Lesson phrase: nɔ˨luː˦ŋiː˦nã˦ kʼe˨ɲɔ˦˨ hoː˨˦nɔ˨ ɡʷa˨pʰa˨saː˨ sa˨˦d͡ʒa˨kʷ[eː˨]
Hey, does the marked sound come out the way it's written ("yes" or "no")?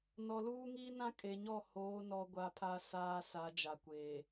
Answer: yes